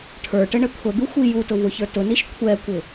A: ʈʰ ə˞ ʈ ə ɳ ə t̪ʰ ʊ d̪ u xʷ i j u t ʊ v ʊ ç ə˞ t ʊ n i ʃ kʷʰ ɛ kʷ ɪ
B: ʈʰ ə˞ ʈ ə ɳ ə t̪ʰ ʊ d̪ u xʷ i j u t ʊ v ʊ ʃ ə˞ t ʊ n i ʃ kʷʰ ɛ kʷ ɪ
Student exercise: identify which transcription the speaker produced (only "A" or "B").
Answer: A